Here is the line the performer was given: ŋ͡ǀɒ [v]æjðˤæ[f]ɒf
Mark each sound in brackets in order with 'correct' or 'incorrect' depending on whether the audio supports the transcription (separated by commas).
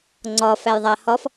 incorrect, incorrect